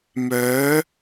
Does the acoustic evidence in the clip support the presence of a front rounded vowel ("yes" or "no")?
yes